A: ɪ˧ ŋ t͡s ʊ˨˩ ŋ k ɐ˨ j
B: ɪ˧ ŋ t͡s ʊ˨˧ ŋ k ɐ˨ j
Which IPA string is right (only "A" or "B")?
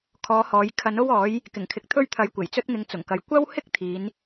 A